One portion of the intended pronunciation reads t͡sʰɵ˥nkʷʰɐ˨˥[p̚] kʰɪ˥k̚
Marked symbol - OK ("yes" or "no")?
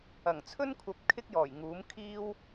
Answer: yes